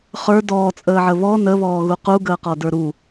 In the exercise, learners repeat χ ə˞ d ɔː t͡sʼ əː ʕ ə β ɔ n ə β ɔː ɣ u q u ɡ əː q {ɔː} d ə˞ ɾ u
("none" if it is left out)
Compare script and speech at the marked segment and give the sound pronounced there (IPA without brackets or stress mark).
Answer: ɔ